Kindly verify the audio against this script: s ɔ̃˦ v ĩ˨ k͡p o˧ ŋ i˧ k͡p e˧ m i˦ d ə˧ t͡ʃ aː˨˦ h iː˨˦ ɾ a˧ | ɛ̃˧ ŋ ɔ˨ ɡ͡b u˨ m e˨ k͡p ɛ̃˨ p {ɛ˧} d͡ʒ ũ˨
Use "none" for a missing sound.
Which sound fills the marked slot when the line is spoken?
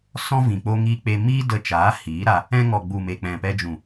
ɛ˧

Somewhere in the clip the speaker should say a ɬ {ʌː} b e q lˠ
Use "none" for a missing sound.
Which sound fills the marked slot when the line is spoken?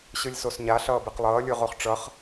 ʌː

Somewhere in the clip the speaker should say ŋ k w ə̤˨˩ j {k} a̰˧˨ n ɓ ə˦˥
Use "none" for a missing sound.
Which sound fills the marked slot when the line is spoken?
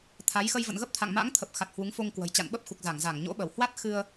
t͡ɕ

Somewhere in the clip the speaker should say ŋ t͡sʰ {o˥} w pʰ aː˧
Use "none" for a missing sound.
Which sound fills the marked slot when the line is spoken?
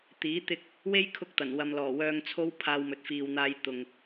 o˥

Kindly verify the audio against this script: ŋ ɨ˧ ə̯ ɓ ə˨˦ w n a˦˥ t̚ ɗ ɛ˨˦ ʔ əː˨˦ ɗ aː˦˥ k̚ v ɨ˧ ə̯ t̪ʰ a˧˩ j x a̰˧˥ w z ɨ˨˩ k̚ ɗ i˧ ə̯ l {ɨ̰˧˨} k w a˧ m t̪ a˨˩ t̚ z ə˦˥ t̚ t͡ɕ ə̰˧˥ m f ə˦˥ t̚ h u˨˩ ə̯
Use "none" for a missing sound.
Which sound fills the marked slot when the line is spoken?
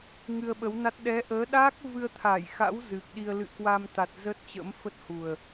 ɨ̰˧˨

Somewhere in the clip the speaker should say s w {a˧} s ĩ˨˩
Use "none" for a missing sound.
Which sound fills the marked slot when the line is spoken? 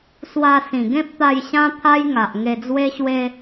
a˧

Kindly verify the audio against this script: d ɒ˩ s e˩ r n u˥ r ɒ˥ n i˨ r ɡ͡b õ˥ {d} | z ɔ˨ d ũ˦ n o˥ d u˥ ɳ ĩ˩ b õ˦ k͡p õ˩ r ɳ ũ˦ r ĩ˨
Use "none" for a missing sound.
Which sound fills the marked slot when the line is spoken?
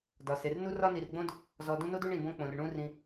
d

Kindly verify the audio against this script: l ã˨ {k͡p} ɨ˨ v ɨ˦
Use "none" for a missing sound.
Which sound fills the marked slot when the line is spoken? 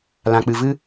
k͡p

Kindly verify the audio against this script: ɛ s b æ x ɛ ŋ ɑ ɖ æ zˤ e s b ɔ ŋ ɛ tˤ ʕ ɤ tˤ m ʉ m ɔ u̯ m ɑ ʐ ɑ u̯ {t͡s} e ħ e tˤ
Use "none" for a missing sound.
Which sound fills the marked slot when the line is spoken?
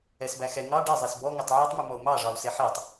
s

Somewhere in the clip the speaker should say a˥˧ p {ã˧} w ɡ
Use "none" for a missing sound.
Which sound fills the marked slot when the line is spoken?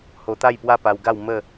a˧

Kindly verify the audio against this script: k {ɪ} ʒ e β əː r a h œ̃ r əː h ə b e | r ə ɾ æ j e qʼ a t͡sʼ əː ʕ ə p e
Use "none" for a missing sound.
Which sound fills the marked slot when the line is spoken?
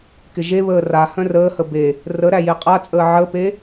ɪ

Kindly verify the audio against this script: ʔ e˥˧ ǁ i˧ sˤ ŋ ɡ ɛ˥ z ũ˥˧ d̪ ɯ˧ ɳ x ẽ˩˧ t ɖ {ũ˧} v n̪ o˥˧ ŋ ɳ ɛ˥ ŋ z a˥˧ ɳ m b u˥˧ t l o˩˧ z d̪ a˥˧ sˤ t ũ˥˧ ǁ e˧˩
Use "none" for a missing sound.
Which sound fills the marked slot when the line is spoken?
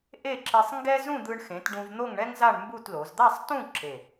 ũ˧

